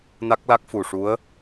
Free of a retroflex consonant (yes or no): no